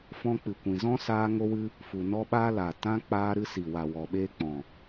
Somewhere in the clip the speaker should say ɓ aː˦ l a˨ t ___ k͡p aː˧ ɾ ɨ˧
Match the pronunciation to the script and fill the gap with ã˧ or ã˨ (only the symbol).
ã˧